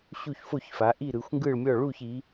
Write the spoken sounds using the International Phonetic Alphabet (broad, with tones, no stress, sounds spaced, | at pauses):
ɕ u˥˧ ç f o˥˧ ç f a˨˦ ʔ i˥˧ ɾ ɯ˨˦ xʷ ŋ ɡ ɯ˥˧ ɭ mʲ ɔ˥˧ ɭ u˥˧ ç i˨˦